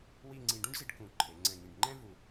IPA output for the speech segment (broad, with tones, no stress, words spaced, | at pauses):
wi˥˧ŋ͡ǀĩ˧ ɖũ˥ɖzi˧ɖ kũ˧˩ ǃʰe˩˧ŋ͡ǀɛ̃˧˩ŋĩ˧˩ɖ ŋ͡ǃɛ̃˥vu˧˩